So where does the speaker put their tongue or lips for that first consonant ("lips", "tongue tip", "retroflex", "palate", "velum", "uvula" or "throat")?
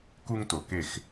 velum